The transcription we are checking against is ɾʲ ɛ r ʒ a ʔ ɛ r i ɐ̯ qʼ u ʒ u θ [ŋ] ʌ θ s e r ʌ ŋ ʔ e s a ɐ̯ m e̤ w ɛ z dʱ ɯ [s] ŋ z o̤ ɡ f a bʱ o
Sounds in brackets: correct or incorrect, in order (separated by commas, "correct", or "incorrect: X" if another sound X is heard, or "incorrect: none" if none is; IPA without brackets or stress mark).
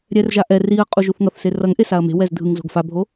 correct, incorrect: none